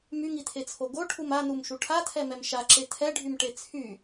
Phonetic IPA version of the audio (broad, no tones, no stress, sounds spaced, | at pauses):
m y ŋ i tʰ e t͡sʰ o ɡ o ʈʰ u m a n u m ʃ u ʈʰ a tʰ ɛ m ɛ m ʃ a ǁ e tʰ ɛ ɖʱ y m ʈ e t͡sʰ y